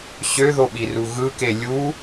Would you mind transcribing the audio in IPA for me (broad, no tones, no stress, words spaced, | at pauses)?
ɕøðoɓiru ɣɯke lʲu